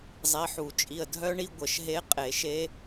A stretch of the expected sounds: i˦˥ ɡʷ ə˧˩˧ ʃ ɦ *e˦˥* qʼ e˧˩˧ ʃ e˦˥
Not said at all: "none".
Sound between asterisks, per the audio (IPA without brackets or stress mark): e˦˥